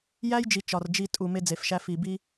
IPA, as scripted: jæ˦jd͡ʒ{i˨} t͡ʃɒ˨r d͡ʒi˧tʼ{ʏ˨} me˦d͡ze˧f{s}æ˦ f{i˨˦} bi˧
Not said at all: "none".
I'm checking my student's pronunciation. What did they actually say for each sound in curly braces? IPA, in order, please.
i˨, u˨, ʃ, i˨

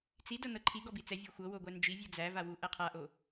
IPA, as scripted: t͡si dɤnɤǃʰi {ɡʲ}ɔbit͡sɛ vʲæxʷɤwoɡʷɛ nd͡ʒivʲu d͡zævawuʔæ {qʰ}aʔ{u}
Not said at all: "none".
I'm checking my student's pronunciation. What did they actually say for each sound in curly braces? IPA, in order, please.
ɡ, qʰ, o

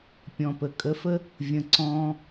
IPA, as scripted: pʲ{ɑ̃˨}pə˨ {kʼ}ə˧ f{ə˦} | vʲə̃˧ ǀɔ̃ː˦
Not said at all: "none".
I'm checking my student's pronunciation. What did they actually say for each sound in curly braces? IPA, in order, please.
ɔ̃˨, kʼ, ə˦

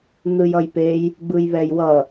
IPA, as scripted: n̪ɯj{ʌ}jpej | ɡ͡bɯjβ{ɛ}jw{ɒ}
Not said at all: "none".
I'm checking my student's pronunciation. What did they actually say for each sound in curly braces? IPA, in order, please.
ʌ, ɛ, ʌ

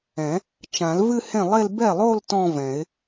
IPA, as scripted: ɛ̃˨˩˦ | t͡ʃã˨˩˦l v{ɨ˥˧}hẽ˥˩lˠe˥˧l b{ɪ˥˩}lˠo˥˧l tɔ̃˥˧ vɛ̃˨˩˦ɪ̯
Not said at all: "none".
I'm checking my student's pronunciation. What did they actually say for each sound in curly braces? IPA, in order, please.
ɨ˥˧, ɛ˥˩

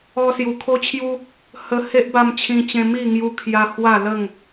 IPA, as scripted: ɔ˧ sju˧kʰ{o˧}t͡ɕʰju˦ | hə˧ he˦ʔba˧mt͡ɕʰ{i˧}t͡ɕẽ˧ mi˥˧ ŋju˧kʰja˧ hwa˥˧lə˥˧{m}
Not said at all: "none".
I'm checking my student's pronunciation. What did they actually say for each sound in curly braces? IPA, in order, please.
o˦, ĩ˧, ŋ

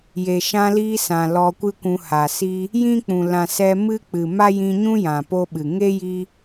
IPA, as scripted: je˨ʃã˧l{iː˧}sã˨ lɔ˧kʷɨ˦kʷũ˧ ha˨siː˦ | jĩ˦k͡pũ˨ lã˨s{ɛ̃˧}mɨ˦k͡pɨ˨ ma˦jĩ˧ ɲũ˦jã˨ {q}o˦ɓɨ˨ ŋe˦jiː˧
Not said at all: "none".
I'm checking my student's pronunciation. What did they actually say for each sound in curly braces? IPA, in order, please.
iː˧, ɛ˧, p

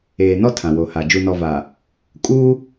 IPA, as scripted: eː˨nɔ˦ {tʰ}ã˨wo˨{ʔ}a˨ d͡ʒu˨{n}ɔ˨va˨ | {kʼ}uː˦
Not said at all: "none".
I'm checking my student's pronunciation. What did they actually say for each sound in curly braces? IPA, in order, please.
tʰ, h, n, kʼ

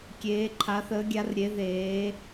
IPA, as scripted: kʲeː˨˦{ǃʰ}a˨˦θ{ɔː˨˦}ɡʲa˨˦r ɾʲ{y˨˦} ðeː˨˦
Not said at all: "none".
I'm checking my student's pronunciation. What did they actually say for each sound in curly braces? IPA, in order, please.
ǃʰ, əː˨˦, e˨˦

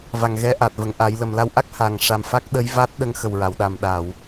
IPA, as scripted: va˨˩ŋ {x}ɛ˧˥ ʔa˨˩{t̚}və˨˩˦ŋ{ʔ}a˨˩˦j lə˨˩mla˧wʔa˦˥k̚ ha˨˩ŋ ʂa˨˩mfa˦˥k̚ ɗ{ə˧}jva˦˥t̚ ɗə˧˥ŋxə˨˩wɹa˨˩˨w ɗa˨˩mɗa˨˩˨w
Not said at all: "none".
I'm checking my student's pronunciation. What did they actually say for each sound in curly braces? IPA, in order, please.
ɣ, t̚, ʔ, ə˧˥

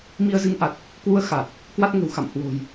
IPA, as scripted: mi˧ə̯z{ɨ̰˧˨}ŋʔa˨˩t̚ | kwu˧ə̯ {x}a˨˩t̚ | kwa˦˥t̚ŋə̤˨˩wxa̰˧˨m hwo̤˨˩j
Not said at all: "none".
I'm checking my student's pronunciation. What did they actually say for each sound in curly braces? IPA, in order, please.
ɨ˨˦, x

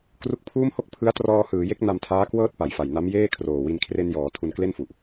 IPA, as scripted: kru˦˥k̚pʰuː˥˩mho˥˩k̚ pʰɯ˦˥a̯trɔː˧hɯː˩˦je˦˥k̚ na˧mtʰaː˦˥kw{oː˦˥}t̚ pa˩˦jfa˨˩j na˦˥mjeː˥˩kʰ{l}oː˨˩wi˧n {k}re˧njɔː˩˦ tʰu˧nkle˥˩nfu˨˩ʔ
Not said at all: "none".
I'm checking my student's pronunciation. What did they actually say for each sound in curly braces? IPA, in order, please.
ɤː˦˥, r, kʰ

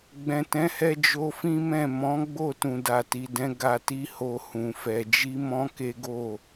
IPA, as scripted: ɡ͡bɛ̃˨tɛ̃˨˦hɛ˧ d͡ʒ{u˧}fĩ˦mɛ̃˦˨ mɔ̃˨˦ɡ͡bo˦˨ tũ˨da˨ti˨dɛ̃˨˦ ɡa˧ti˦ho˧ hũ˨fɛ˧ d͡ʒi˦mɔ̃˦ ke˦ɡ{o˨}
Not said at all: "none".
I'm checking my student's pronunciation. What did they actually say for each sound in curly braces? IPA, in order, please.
o˧, o˦˨

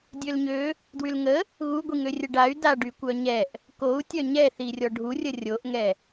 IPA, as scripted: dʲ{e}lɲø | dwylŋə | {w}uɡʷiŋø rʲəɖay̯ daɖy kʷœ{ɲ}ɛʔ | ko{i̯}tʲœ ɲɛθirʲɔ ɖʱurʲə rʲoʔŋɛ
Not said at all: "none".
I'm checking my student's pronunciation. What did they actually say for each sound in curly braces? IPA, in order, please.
ø, ɣ, ɲ, u̯

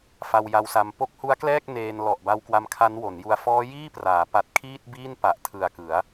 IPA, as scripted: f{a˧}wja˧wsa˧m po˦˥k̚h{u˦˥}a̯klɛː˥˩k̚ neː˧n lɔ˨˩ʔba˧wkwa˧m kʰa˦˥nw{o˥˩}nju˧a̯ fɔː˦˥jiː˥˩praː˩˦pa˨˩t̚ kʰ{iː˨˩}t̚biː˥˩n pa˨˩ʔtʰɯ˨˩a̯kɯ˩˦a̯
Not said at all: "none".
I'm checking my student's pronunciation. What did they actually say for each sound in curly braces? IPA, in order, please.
a˧, u˦˥, o˩˦, iː˥˩

